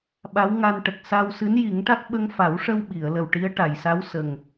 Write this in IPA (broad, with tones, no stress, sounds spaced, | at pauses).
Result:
ɓ a˧˥ w ŋ a˧ n ʈ ə˨˩ k̚ s a˧ w s ɨ˧˥ n j i˨˩˦ ŋ ʈ a˦˥ k̚ ɓ ə˧ ŋ f a˨˩˦ w ʂ ə˧ w ɓ i˨˩˨ ə̯ l ə˨˩ w ʈ i˧˥ ə̯ ʈ a˨˩˨ j s a˧˥ w s ə˨˩ ŋ